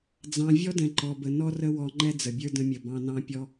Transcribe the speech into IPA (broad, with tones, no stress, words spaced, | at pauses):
d͡zɑ̃˧ vʲɔ˦dɛ̃˨ǃɔ˨bə˨ nɔ˦rə˦ wɔ˧ŋ͡ǃɛ˦ d͡zə˨bʲə˞˦ də̃˧mʲə˨ bɑ̃˧nɑ̃˦pʲɔ˦